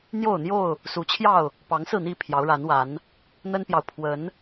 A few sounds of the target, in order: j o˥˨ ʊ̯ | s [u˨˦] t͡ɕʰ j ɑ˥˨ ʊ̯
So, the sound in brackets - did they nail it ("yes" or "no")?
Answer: yes